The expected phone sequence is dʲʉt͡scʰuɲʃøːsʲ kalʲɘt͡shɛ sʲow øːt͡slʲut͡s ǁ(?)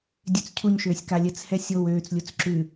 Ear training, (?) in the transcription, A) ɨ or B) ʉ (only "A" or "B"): B